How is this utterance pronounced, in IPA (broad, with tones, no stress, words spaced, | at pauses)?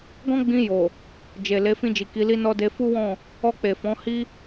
ɡɔ̃˦ɡ͡bĩ˧jo˨ | d͡ʒe˨ le˨˦fĩ˧d͡ʒi˨ ki˧li˦nɔ˦ de˧fu˦wɔ̃˦˨ | ɔ˧k͡pe˨ fɔ̃˨˦hi˦